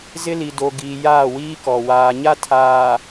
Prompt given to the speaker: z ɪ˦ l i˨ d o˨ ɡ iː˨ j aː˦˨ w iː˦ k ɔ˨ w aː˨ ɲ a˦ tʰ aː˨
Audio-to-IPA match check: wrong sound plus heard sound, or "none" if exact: none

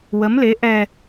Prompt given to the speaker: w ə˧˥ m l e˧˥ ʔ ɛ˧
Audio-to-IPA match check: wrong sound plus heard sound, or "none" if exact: none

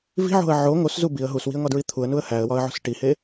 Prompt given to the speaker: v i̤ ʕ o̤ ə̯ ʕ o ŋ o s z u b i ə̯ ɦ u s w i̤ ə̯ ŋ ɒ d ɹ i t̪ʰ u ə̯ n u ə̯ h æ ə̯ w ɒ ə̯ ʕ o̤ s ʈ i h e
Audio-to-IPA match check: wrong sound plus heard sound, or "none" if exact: none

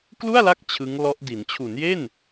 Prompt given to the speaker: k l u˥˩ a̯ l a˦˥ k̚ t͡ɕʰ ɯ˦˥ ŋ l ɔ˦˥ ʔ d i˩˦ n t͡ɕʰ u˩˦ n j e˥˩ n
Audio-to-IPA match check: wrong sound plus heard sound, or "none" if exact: none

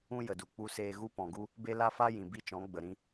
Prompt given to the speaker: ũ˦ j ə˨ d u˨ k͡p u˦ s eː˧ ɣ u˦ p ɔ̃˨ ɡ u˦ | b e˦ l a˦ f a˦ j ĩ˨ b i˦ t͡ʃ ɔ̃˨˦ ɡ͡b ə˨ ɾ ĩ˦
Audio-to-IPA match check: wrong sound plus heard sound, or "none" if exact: none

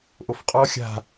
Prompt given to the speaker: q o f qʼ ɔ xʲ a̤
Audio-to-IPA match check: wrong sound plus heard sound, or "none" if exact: q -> ʔ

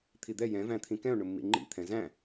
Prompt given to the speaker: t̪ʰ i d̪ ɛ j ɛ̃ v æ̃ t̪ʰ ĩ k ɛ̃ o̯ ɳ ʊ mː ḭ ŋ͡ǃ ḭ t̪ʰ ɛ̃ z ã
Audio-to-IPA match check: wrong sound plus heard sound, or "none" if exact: ã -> æ̃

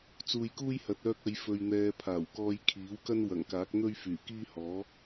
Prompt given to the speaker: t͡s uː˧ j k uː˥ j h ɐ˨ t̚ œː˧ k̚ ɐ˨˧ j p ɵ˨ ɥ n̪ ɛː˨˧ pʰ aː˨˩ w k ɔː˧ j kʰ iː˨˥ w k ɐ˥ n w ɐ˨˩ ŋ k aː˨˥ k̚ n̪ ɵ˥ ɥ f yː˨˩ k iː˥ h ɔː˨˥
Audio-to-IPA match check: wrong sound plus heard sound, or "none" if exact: p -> f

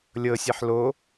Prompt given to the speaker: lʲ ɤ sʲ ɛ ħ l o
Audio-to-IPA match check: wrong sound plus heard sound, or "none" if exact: none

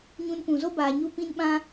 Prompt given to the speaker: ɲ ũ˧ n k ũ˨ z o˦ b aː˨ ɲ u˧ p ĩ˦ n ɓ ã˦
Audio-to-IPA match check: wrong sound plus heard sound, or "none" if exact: none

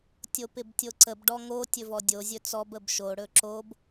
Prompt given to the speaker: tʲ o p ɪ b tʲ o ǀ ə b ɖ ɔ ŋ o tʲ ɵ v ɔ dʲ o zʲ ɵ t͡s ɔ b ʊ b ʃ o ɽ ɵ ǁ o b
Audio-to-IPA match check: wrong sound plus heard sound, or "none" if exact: ʊ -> ə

